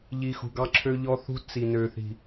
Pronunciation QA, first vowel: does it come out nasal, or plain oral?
oral